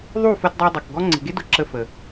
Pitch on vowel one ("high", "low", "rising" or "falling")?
falling